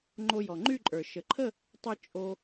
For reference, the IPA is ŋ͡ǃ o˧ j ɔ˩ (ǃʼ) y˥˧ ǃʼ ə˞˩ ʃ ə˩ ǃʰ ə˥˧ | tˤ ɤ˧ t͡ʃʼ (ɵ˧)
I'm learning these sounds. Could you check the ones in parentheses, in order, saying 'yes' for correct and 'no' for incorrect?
no, no

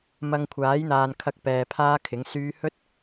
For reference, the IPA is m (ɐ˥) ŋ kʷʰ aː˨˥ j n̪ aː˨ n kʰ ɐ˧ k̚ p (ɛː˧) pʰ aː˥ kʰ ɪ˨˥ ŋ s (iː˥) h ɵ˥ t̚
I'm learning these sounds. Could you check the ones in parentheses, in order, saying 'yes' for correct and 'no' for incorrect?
no, yes, no

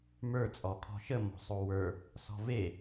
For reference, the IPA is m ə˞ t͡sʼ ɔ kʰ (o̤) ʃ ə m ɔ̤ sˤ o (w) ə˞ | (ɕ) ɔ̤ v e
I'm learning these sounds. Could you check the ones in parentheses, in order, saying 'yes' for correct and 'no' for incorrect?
no, yes, no

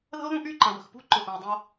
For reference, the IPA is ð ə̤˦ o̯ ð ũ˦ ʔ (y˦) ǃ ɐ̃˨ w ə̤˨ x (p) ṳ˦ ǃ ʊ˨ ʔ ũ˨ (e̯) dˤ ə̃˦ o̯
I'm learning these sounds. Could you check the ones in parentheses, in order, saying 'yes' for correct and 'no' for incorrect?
yes, yes, no

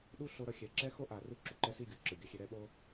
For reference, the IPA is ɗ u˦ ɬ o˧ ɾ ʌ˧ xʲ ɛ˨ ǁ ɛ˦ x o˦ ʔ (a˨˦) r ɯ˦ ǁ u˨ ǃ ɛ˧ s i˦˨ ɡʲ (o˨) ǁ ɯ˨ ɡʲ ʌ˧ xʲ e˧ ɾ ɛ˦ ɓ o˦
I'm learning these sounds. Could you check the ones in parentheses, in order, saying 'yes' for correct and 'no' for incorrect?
yes, no

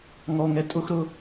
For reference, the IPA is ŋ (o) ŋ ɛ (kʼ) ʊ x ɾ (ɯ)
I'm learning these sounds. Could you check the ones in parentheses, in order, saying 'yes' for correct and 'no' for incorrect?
no, no, no

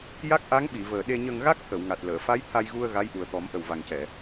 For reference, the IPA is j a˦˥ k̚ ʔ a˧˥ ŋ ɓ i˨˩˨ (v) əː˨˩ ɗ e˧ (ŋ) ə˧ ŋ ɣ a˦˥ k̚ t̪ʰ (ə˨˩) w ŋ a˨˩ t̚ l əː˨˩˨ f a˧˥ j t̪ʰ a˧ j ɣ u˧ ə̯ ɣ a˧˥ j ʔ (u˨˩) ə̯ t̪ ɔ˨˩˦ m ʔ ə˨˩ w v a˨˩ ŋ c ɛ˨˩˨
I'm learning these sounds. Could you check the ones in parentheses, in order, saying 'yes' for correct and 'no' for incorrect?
yes, no, no, yes

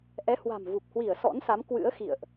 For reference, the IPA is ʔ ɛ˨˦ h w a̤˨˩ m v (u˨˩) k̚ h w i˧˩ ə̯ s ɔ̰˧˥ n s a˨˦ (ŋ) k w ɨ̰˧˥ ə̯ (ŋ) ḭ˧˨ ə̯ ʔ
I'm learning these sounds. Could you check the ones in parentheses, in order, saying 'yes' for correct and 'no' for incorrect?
yes, no, no

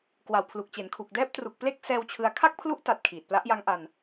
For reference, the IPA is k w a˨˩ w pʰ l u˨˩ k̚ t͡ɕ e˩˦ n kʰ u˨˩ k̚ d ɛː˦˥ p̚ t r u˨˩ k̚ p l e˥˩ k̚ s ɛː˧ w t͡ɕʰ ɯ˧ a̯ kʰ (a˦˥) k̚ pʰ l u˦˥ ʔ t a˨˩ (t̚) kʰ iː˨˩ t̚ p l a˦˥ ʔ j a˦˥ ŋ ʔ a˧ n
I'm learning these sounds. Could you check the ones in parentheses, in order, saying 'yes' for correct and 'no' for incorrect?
no, yes

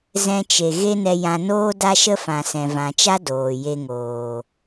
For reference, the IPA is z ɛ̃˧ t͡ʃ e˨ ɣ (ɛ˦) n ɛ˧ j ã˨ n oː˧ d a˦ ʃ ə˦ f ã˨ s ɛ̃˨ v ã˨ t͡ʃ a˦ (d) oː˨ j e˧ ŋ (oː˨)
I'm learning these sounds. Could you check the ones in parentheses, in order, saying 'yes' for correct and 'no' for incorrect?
no, yes, yes

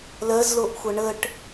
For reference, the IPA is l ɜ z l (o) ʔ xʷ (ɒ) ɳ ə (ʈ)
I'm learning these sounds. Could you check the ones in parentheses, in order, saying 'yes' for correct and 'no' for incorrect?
yes, no, yes

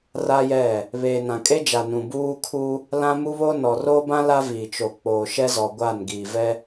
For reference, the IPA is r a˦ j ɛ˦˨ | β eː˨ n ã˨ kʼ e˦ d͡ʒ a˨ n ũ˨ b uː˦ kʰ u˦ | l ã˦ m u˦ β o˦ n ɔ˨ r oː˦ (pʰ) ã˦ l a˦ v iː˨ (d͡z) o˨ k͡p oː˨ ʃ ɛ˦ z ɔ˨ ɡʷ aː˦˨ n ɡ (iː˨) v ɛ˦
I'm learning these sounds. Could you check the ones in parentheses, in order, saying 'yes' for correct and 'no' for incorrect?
no, no, yes

